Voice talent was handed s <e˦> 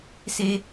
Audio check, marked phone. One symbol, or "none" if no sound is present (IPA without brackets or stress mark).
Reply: e˦